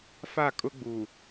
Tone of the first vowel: falling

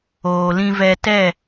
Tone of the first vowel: low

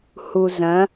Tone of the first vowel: low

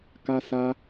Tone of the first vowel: high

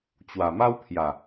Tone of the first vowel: low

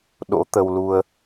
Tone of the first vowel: rising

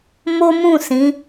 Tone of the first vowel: high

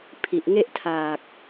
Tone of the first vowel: low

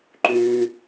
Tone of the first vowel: low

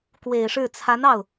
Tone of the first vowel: low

